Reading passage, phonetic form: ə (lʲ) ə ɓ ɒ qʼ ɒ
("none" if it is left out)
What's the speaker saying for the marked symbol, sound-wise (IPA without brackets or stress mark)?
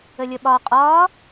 lʲ